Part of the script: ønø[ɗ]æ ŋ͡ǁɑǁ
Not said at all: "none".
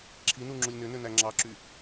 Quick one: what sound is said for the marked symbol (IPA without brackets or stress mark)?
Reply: n